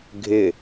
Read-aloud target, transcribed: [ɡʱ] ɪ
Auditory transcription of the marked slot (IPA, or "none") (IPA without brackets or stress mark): ɡʱ